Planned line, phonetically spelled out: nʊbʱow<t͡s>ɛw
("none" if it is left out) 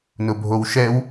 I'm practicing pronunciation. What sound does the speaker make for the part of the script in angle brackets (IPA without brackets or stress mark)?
ʃ